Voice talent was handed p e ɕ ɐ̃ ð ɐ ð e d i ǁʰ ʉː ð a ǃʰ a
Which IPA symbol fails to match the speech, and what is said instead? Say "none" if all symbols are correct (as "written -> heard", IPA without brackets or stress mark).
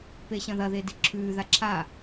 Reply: ǃʰ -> ǁʰ